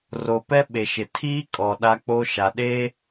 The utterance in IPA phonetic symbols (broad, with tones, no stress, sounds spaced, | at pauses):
r o˨ p ɛ˦ ɓ e˨ ʃ ɪ˨ tʰ iː˦ kʼ ɔ˨ ɗ a˦ k͡p o˦ ʃ a˨ ɗ e˦